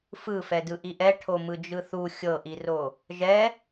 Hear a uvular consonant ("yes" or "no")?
no